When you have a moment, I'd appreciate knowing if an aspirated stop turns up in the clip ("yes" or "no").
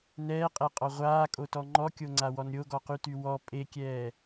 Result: no